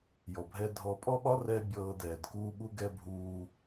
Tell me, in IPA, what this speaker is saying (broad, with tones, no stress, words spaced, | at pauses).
jɔ˨bʱɛ˧dʱɔ˧ pʼɔ˦ɓɒ˦rɛː˧ bʲɤː˧dɛː˨d kuː˧ɓu˧ɡɛ˧ bʱuː˧